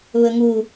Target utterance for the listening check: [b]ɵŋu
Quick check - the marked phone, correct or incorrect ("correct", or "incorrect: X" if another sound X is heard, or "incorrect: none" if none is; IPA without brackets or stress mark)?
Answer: incorrect: β